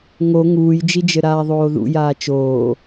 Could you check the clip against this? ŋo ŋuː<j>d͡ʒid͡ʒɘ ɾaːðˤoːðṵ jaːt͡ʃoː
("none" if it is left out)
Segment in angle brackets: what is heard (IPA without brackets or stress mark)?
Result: j